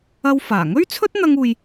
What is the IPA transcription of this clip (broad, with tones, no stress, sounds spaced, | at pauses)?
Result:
ɐ˧ w f aː˨˩ ŋ ɵ˥ ɥ t͡sʰ ɵ˥ t̚ n̪ ɐ˥ ŋ uː˧ j